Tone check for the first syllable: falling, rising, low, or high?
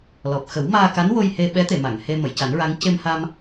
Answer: low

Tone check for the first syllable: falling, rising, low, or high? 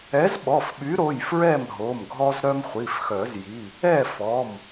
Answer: rising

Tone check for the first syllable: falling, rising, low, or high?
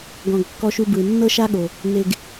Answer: low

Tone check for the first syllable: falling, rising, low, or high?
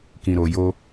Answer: low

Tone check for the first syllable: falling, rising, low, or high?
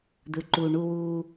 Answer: low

